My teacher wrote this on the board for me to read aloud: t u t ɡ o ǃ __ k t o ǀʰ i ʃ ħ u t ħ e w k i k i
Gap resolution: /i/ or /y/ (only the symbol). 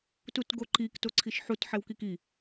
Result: i